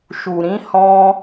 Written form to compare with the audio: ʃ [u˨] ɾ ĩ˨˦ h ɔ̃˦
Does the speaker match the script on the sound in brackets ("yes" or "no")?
yes